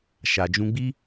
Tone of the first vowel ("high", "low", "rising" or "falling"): low